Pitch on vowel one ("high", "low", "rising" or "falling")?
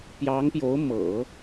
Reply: rising